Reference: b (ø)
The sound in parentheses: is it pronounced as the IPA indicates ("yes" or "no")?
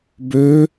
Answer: yes